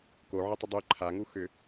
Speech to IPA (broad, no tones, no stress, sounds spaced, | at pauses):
k o ʕ ə tˤ ʏ dˤ ʉ ǃʰ a ŋ u x ʏ